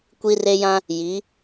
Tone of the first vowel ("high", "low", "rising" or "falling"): high